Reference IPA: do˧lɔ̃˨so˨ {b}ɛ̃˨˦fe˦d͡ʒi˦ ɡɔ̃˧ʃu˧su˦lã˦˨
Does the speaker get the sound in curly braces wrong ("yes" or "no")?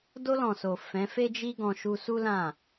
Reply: yes